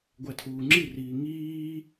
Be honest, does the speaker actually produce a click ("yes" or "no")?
yes